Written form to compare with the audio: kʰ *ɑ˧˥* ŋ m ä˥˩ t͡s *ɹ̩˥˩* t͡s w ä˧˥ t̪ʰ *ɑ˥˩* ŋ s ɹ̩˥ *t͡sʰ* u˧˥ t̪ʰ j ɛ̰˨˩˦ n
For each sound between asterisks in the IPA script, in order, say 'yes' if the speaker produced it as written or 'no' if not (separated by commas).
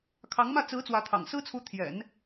yes, no, no, yes